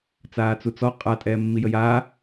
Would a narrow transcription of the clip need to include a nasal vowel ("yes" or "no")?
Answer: no